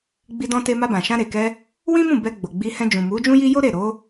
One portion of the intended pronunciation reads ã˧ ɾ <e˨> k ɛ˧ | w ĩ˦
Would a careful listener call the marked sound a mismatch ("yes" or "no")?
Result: no